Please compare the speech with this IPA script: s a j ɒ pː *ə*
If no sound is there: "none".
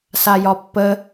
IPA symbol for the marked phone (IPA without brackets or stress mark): ə